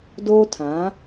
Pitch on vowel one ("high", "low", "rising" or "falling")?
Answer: high